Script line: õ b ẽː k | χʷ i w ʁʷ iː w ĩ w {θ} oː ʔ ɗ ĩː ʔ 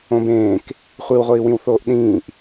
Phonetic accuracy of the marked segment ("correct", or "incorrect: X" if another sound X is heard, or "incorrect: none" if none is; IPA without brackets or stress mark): correct